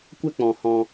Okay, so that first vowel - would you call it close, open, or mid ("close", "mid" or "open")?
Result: mid